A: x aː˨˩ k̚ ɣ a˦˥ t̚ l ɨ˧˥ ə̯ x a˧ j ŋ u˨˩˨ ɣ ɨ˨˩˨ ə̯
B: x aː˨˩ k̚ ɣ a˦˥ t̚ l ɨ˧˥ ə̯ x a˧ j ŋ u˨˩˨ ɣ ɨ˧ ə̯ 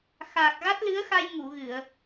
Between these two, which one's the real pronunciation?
A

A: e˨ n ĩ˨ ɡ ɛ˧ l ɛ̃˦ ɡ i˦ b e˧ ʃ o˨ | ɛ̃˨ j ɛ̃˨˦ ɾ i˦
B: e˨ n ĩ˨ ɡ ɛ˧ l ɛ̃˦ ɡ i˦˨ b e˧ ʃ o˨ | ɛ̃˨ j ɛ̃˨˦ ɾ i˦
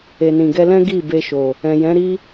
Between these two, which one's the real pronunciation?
B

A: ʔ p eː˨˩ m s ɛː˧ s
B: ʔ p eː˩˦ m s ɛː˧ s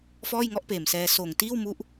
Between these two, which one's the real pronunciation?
A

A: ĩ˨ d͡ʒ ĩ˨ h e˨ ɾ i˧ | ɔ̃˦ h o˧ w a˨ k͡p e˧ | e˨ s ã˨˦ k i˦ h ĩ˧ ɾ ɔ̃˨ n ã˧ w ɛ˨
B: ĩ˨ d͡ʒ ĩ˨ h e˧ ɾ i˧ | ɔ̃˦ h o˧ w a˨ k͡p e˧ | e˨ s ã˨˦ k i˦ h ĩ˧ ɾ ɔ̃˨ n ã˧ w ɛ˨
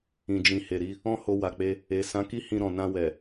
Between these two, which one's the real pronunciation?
A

